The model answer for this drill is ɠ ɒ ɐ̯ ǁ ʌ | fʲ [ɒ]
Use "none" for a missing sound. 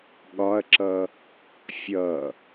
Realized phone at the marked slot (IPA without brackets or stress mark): ʌ